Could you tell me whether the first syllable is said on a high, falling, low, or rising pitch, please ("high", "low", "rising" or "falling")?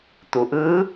low